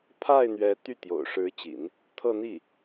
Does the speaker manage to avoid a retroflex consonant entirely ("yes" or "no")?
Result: no